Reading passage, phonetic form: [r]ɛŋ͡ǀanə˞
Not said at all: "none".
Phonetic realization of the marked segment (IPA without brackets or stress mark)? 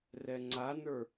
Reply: r